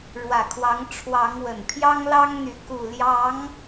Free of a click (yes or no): yes